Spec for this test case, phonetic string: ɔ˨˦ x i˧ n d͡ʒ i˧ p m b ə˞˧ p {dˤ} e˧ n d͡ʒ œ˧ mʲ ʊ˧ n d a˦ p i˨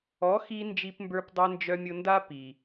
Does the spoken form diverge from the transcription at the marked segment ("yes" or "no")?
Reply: no